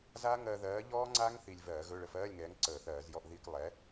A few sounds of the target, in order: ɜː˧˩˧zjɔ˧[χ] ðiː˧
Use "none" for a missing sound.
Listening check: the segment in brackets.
ʔ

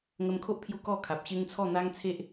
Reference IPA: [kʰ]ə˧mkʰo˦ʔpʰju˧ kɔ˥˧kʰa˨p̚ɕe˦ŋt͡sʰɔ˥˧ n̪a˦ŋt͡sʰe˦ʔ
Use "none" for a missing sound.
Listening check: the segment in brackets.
ŋ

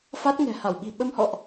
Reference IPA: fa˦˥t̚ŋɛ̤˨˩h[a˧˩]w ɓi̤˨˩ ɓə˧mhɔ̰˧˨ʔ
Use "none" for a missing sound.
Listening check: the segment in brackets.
a˧˩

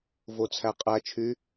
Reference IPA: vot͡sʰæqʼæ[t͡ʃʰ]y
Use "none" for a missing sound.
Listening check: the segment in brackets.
t͡ʃʰ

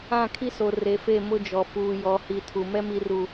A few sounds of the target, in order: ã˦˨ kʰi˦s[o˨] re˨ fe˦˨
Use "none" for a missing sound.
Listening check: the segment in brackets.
o˨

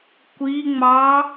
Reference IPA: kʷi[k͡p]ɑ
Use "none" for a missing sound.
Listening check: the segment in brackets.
ŋ͡m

